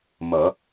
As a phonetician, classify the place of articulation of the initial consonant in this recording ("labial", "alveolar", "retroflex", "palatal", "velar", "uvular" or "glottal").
labial